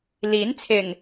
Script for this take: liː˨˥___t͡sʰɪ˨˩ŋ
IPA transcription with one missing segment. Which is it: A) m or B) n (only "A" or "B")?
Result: B